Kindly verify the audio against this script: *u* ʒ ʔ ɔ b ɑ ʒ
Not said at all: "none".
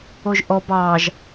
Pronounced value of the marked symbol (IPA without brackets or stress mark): o